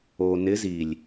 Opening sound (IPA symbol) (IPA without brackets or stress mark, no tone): o